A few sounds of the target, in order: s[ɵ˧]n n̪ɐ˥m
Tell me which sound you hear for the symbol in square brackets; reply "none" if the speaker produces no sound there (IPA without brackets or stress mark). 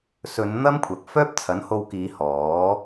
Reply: ɵ˨˧